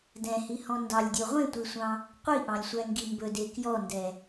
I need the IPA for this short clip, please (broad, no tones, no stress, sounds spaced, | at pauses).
d ɛ̃ h i h ɔ̃ n d ɑ lʲ dʲ o ʁʷ ẽ tʷ i sʷ ɑ̃ | qʷ i ʔ ɑ̃ lʲ sʷ æ ŋ ɡ i m b ɵ d e k j ɔ n d ɛ